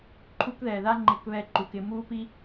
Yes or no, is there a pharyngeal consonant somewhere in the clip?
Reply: no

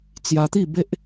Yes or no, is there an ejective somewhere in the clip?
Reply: no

